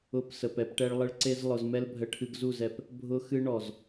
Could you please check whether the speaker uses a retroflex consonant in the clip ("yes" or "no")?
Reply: yes